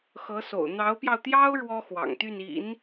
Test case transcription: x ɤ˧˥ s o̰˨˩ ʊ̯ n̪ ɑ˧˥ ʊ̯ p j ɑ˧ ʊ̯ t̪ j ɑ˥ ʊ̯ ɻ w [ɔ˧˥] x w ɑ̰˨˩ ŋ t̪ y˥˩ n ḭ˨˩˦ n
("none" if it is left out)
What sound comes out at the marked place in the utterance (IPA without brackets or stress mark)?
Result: ɔ˥